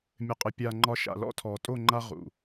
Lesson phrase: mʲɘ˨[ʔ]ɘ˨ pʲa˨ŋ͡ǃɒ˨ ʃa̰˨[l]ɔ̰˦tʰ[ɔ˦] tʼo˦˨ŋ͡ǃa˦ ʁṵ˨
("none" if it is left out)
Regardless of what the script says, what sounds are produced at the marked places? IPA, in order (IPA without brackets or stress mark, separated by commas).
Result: qʼ, l, ɔ˨